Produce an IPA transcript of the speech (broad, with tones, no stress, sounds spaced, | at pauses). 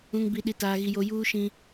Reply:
ũ˦ ŋ b i˦ ɗ i˦ t aː˦ ɣ i˦ j o˦ j uː˦ ʃ ĩ˦